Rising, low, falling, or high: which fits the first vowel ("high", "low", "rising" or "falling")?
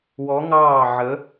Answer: rising